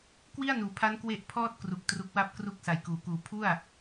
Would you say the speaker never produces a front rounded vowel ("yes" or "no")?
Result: yes